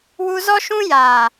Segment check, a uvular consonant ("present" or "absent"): absent